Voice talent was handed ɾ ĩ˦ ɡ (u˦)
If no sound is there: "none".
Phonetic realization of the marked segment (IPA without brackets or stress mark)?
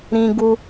u˦